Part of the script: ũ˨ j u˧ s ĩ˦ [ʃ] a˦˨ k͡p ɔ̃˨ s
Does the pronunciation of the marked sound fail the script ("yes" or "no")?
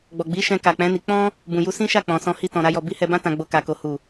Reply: no